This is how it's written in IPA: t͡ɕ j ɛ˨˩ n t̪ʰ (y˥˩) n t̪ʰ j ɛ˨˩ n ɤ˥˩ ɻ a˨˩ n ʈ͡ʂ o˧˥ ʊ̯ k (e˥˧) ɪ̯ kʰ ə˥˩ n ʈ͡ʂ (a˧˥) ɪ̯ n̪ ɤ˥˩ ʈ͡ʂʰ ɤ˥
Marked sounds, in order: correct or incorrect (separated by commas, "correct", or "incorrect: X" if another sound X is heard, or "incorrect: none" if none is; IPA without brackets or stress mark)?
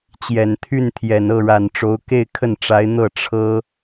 correct, correct, correct